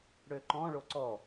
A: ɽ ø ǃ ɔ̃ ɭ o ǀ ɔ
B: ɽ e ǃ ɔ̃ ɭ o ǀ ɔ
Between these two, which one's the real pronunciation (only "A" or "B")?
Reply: A